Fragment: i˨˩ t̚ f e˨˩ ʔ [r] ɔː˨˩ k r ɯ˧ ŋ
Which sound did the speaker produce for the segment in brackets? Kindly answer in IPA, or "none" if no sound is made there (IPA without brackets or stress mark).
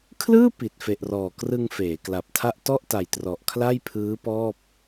r